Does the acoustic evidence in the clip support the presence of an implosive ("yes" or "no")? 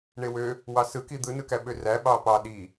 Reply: yes